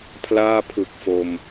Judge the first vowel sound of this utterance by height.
low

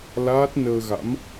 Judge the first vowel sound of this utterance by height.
low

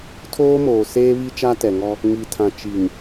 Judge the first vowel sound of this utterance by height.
mid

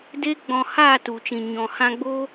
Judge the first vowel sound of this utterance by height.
mid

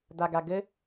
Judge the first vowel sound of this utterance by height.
low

